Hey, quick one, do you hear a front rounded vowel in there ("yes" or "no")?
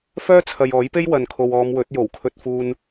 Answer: yes